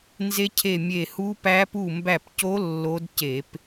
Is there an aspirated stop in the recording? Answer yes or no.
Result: yes